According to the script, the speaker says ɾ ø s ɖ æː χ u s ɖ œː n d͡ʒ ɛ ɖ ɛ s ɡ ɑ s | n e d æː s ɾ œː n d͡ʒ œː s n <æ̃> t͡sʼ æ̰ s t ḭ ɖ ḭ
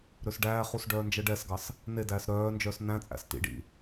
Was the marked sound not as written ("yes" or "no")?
no